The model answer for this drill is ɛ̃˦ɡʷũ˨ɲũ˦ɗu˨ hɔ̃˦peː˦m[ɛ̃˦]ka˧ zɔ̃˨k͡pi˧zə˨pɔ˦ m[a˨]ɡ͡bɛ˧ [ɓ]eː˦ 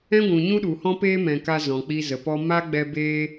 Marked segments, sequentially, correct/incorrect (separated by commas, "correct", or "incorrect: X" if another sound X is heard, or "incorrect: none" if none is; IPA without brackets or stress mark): incorrect: ɛ̃˨, incorrect: a˦, incorrect: b